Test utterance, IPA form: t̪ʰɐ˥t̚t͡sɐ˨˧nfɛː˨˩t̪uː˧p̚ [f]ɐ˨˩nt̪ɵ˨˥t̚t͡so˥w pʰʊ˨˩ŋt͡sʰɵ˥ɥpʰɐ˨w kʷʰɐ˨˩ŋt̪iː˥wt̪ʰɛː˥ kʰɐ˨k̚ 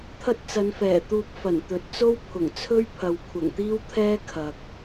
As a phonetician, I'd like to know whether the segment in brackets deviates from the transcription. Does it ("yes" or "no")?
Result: no